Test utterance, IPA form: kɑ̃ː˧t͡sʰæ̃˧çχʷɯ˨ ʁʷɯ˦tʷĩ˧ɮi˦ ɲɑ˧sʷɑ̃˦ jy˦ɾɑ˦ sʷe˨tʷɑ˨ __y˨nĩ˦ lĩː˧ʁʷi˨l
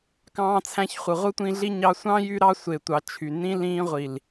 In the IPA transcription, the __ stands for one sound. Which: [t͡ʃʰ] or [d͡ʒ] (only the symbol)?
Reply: t͡ʃʰ